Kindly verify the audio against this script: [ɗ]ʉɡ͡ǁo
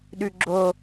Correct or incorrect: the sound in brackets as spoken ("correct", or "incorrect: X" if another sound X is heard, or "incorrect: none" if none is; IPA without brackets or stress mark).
correct